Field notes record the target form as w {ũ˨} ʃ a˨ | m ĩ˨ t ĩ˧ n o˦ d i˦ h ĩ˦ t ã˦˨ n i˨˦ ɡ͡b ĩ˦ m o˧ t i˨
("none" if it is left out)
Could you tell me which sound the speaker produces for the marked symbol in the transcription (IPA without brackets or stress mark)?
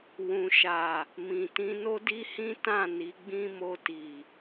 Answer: ũ˨